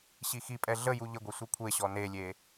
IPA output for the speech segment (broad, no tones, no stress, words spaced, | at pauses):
ɕixipʼɛ ɮə juʎəɡʷɛ sʷikʷʰeɕɔ nelʲe